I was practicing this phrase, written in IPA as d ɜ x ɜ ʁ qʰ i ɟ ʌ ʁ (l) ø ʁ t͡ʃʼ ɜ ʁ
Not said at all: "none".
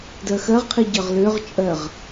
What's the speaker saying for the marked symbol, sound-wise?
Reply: l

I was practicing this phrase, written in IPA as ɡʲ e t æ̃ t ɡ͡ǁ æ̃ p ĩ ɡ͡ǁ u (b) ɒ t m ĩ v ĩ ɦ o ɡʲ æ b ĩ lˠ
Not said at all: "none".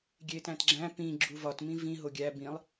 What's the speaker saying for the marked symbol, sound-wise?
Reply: v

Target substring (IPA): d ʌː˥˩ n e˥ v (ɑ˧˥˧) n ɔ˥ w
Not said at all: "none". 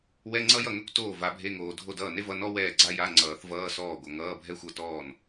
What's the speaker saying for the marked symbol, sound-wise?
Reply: ʌ˧˥˧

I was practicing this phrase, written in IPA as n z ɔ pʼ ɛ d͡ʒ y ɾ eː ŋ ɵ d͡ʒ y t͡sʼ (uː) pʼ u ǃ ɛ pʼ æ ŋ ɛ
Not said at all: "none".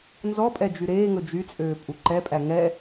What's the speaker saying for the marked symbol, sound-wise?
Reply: øː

